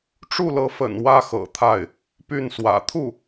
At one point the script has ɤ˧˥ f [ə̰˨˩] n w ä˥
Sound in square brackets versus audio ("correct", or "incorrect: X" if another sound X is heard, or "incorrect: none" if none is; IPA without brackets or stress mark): correct